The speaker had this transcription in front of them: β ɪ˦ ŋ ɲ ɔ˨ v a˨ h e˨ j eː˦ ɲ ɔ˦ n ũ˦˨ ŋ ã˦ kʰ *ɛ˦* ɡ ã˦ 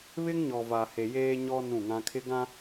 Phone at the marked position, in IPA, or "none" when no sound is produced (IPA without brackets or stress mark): ɪ˦